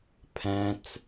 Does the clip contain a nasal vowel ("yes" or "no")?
yes